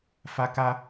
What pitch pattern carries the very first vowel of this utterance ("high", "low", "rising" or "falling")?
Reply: high